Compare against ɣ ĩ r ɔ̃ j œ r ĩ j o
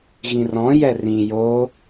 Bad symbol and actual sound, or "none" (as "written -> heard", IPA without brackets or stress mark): œ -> ɛ